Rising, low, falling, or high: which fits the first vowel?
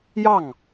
falling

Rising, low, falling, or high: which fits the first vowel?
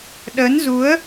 rising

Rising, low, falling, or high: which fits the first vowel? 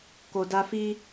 low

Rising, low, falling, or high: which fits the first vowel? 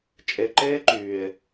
low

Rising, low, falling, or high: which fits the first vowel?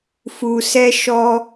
low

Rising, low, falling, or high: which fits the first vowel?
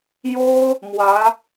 high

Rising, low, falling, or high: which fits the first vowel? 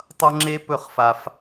high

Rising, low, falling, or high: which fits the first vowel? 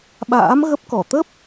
rising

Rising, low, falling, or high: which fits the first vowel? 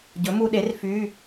rising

